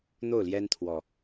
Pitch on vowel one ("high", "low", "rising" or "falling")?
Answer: falling